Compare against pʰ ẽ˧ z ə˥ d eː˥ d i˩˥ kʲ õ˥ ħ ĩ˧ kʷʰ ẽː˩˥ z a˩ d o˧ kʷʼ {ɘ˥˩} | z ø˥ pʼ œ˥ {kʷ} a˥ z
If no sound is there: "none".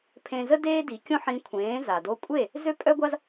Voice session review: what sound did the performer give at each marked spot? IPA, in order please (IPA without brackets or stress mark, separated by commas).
e˥˩, ɡʷ